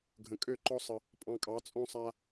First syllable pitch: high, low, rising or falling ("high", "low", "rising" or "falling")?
low